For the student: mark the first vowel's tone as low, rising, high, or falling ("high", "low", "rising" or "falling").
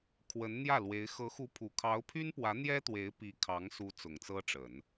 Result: rising